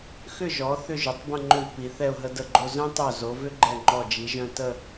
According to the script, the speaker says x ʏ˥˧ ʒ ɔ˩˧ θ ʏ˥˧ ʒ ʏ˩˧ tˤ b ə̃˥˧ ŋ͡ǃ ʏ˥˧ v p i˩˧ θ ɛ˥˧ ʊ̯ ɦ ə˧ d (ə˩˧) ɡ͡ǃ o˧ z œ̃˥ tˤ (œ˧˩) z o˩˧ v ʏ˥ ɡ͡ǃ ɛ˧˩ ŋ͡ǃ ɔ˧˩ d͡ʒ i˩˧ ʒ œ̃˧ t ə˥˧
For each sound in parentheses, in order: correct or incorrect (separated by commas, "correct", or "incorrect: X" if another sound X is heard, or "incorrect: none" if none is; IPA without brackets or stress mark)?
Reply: incorrect: ə˧˩, correct